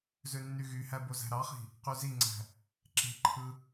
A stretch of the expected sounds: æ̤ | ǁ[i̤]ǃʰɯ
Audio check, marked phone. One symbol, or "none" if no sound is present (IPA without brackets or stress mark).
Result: e̤